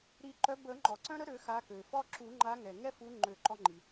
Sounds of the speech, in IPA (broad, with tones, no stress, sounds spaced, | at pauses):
ɾ i˨˩˦ ǃ œ˨˦ b ə˨˩˦ ŋ͡ǃ ɔ˩ ǀ œ̃˦ ɾ ə˦ ɾ ø˨˩˦ x a˨˦ k ø˩ f ɔ˦ ǁ u˨˩˦ ŋ͡ǃ a˨˦ ŋ ɛ˩ ŋ ɛ˦ f u˨˦ ŋ͡ǃ ø˨˩˦ ǃ ɔ˦ ŋ͡ǃ i˩